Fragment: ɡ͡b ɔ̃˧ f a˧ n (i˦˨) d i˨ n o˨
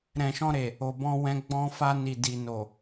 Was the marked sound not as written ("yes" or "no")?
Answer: yes